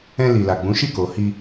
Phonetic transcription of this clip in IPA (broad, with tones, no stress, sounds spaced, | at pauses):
ɛ̃˧ l i˨ l a˨ ɡ͡b ũ˨˦ ʃ i˦˨ k o˨ h i˧